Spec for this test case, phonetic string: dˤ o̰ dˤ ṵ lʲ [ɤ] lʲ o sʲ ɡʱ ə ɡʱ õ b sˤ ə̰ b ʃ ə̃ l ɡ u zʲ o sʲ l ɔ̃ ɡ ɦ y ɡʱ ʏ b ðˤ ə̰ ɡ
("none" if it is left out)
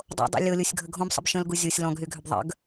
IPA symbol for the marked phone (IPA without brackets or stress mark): ɤ